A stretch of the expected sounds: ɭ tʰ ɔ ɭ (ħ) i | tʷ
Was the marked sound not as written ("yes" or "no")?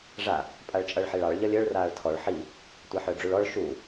no